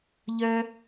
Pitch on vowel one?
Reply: high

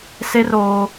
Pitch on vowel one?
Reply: high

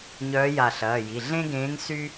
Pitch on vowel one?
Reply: rising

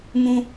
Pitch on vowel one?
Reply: high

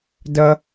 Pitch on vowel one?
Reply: high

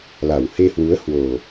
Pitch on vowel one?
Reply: low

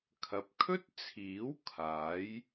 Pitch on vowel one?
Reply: low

